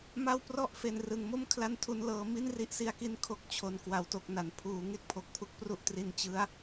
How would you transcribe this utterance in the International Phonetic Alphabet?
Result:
m a˥˩ w p r ɔ˥˩ ʔ f e˨˩ n r ɯ˨˩ ŋ m o˥˩ m kʰ l a˥˩ n tʰ u˦˥ n l ɤː˧ m i˥˩ n r i˦˥ ʔ s i˧ a̯ k i˦˥ n kʰ o˦˥ k̚ t͡ɕʰ o˨˩ n k w a˩˦ w t o˨˩ k̚ n a˩˦ n pʰ uː˩˦ ŋ e˥˩ k̚ pʰ o˨˩ k̚ pʰ u˦˥ k̚ p r u˥˩ ʔ t r i˧ n t͡ɕ ɯ˦˥ a̯

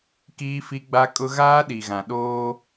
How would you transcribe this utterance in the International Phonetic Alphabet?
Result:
k iː˦ f i˦ ɡ͡b a˦ kʼ ʊ˦ ɣ aː˦ ɗ i˨ ɣ ã˨ ɗ oː˦

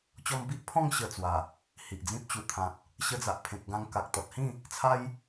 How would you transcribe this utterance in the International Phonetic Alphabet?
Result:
t͡ɕ ɔ˧ m b i˦ ʔ pʰ ɔ̃˥˧ ŋ ɕ ə˧ t͡s w a˨˩ | h i˨ ʔ d͡z ĩ˦ p̚ t͡ɕ u˨˩ t̪ʰ ã˨ t̚ | ɕ ə˧ d͡z a˨ ʔ pʰ ẽ˨ k̚ ɡ ã˧ ŋ k a˨ k̚ t̪ ɔ˨ t̚ h ĩ˥˧ | t͡sʰ a˦ j

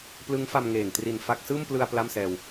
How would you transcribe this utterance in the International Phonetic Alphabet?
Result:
p l ɯ˦˥ ŋ f a˧ m ŋ eː˨˩ ŋ t r i˨˩ n f a˦˥ k̚ s ɯː˥˩ m p l ɯ˧ a̯ p l a˥˩ m s ɛː˧ w

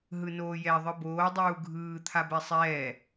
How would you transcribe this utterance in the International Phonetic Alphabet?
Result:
ɦ ɯ n oː j ɛ ðˤ ɯ b oː dˤ uː ɡʱ ɯː t̪ʰ a b ɛ sˤ ɛː

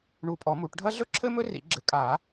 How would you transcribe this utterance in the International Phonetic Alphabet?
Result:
ɳ u˨˩˦ pʼ ɔ˨˩˦ m u˨˩˦ ʈ ɖʱ ɐ˥ ɮ ɵ˥ ǁʰ ɘ˥ m ɵ˥ r ḭ˨˩˦ ɡ͡ǁ ɘ˨˩˦ kʼ a˨˩˦

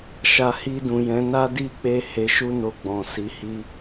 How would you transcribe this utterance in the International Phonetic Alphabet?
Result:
ʃ a˨ h i˧ d ũ˨ j ɛ̃˨˦ n a˦ d i˦ k͡p e˦˨ h e˨˦ ʃ u˦ n o˧ ɡ͡b ɔ̃˨ s i˨˦ h i˦

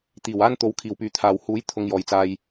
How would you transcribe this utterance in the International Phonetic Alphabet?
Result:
t̪ iː˨˩ w aː˥ n t̪ o˨˥ w kʰ iː˨˩ w p yː˨ t̪ʰ aː˨˩ w h uː˨˥ j t̪ʰ ʊ˨ ŋ j ɔː˨˩ j t͡s aː˨ j

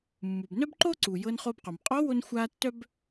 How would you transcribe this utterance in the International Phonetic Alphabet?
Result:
mː u˩ b n œ˥ b ǃ o˥ ǀ u˩ j ɤ˧ n χ o˧ b q o˩ m qʼ ɔ˧˥ w o˧ n xʷ a˧ tː œ˥ b

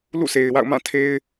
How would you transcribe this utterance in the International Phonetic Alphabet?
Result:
l ṵ˦˨ s e˨ ɪ̯ w a̰˦˨ ʊ̯ m ã˦˨ tʰ e˦ ɪ̯

